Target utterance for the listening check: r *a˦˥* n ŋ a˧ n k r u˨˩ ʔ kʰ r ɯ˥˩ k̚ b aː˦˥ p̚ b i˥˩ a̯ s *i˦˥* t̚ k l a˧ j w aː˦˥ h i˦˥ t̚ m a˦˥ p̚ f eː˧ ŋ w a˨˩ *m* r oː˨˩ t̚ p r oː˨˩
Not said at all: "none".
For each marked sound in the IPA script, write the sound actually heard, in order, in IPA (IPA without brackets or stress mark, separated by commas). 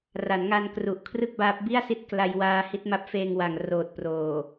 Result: a˩˦, i˦˥, ŋ